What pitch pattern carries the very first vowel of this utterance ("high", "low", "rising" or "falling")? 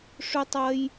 high